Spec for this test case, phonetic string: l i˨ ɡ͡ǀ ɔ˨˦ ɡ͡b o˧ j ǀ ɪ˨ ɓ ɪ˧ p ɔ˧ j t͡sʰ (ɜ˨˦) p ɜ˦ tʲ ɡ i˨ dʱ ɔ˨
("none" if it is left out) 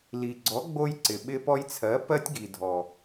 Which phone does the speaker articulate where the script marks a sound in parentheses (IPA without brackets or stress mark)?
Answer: ɜ˨˦